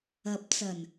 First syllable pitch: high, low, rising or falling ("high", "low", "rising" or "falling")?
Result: rising